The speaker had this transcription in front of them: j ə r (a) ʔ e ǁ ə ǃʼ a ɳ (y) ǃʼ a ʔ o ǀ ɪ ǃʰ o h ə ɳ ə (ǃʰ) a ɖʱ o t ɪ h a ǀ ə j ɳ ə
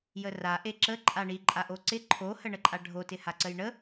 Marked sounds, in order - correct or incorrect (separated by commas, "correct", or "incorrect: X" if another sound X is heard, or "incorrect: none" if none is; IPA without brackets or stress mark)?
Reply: correct, incorrect: i, incorrect: ǃʼ